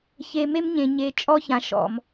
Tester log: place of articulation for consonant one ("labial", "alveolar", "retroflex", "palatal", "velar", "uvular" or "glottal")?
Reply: palatal